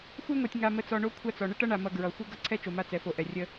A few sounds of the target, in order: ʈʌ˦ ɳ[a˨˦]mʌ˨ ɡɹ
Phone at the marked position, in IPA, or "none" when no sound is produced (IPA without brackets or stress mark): a˨